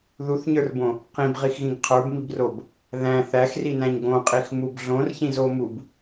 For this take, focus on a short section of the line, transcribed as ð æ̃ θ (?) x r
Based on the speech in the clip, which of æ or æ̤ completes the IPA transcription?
æ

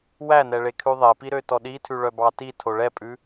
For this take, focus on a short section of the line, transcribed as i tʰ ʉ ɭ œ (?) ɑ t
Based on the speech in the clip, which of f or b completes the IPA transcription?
b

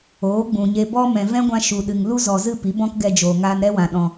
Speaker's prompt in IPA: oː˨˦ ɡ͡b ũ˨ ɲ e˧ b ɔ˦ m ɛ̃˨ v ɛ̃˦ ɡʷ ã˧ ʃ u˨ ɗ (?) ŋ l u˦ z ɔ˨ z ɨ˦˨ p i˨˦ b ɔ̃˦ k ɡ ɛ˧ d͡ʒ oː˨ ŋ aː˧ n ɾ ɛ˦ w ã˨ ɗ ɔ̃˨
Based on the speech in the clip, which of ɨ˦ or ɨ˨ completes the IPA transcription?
ɨ˨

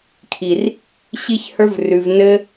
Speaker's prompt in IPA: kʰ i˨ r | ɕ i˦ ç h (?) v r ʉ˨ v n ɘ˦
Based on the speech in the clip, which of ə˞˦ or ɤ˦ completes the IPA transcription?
ə˞˦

